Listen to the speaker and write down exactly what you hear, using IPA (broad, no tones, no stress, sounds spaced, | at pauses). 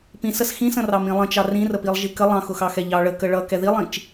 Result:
p ĩ s ə s x ĩ s ə̃ r ɑ m ĩ lˠ ə̃ t͡ʃ ɑ r ĩ r ə p i lˠ ʒ i k ə lˠ ɑ̃ x ʊ x ɑ x ɛ ʎ ɑ ɭ ə k ə ɭ ʌ k ɛ ð i lˠ ĩ t͡ʃ